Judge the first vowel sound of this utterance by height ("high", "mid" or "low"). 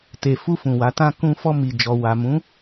mid